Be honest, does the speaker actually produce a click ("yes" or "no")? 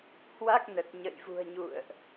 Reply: no